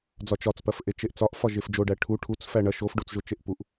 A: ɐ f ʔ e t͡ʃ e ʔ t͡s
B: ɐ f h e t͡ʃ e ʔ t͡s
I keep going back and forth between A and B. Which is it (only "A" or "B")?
A